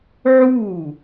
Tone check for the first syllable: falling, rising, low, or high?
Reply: falling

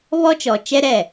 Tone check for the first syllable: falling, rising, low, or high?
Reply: high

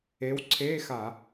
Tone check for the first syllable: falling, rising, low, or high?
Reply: rising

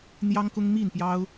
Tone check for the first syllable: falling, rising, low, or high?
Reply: high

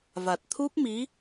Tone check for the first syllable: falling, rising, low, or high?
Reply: low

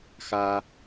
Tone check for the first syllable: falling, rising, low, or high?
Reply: high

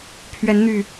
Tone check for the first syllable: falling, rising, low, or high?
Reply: rising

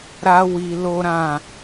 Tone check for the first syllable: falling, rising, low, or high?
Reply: high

